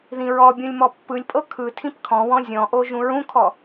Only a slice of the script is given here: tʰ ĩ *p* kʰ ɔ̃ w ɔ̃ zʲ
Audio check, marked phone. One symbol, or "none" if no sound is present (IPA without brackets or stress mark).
p